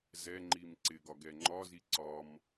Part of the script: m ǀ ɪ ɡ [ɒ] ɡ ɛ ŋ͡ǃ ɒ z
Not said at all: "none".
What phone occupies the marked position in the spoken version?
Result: ɒ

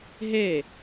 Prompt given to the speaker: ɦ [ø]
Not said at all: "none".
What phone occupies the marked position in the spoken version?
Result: e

